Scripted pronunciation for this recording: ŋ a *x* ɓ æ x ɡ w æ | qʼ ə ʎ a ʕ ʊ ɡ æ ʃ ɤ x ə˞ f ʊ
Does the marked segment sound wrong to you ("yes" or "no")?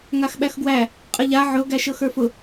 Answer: no